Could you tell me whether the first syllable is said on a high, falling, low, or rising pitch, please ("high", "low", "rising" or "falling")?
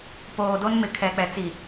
low